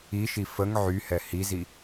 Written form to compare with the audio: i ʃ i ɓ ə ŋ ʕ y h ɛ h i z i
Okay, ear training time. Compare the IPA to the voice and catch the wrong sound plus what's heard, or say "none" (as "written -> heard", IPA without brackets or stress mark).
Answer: ɓ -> f